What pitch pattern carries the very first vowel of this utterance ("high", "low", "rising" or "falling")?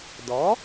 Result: rising